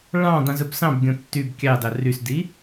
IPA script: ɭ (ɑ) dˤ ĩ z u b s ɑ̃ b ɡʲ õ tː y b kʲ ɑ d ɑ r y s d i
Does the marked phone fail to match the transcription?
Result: yes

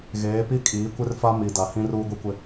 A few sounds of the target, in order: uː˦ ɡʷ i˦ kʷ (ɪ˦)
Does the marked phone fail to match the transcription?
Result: no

